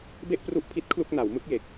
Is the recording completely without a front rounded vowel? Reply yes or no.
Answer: yes